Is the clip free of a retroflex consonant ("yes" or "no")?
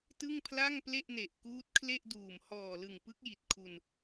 yes